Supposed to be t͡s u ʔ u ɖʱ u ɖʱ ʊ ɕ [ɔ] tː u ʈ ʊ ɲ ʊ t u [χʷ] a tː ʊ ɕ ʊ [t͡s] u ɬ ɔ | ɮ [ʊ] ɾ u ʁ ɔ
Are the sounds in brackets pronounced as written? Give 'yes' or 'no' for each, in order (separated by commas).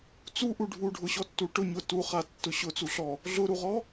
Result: yes, no, yes, yes